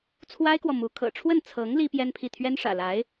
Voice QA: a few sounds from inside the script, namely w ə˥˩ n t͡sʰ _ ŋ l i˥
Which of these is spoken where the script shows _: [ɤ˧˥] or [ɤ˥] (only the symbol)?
ɤ˧˥